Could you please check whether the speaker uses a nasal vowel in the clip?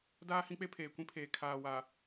yes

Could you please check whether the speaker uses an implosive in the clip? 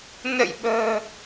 yes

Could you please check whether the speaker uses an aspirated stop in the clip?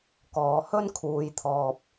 yes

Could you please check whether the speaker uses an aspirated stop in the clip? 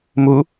no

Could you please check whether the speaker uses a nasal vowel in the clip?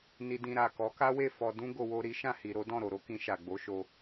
yes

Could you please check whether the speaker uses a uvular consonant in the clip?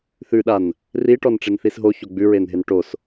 no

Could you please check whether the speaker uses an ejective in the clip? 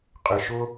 yes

